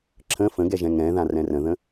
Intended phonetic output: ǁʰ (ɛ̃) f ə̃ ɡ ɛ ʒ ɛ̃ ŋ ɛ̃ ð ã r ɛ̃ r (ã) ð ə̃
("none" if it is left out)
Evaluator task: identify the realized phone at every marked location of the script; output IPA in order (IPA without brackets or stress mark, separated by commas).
ə̃, ə̃